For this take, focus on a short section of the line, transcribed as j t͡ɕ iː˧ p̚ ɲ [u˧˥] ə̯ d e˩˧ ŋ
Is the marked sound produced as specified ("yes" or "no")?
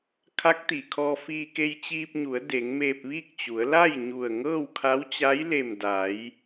no